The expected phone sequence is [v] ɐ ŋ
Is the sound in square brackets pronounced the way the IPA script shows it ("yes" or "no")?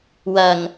no